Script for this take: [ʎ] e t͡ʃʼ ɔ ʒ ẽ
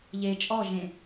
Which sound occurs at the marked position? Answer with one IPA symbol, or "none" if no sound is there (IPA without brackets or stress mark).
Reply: ʎ